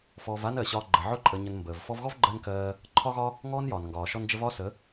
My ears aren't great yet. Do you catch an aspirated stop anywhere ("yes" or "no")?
yes